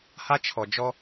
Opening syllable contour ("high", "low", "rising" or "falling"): high